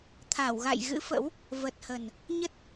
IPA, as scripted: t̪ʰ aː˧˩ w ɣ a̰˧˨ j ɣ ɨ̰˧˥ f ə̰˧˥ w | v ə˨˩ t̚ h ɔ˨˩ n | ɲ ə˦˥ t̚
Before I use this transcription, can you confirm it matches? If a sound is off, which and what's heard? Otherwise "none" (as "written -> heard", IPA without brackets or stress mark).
ɔ˨˩ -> ə˨˩